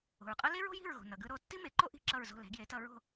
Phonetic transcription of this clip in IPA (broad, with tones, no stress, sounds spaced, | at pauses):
o̤˩ ɹ qʼ ʌ˥ l e˥ ɹ o̤˥ j i̤˥˩ ɹ ɣ o̤˩ n ʌ˩ ɡ ɯ˧ ɾ o˥˩ tː i˥ m e˩˥ ǃ o˥ ʔ i̤˥˩ ǁ ʌ˥˩ ɹ z o̤˥˩ l ɛ̤˩˥ ɡ j e˩˥ t ʌ˧ ɹ o̤˥˩